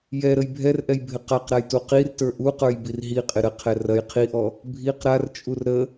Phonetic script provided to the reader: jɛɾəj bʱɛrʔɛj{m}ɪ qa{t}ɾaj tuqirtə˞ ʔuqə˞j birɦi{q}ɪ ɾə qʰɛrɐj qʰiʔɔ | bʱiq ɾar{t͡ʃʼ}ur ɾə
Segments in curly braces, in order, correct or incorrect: incorrect: bʱ, incorrect: q, incorrect: qʼ, correct

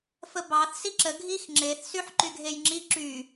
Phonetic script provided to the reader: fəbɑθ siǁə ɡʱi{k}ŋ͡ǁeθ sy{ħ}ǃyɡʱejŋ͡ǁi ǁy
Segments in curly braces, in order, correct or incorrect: incorrect: x, correct

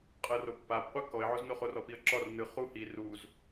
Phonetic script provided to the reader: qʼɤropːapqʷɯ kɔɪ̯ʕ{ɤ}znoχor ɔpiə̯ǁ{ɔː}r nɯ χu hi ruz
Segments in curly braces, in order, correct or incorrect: incorrect: o, incorrect: ɔ

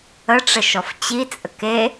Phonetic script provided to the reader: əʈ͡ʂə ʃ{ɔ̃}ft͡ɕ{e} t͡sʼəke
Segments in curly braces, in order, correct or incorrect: incorrect: ɔ, incorrect: i

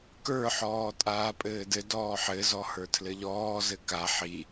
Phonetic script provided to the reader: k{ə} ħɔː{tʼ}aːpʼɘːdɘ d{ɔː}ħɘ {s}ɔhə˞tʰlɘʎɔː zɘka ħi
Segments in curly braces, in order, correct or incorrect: incorrect: ə˞, correct, correct, incorrect: z

